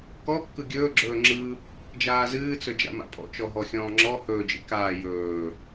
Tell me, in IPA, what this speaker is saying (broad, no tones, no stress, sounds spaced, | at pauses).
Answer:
k ɔ kː ɯ ɡʲ ɵː ɡ͡ǁ ɵː ŋ͡ǁ ɯ | d͡ʒ aː z ɨː t͡s ɵ d͡ʒ a̰ m a̰ pʼ ɔ̰ t͡ʃ ɔ ɦ ɔ xʲ ɔ̃ː ŋ͡ǁ ɔ h ɵː d͡ʒ ḭ k aː j ɵː